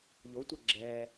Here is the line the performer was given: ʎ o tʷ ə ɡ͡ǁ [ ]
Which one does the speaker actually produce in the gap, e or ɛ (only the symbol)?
ɛ